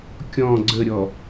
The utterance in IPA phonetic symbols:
kʲɔ̃ ɡ͡ǀəɾʲɔ

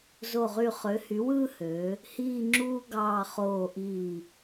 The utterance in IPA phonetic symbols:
zo˧˩ʁy˧˩ χø˩˧hy˩˧wɯː˧ hø˩˧ | hiː˥˧ŋ͡ǁuː˥ ɡɑː˧˩ χoː˧˩ʔiː˧˩

